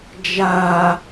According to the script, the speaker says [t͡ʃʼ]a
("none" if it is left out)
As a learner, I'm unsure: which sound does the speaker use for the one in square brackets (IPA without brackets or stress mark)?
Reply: d͡ʒ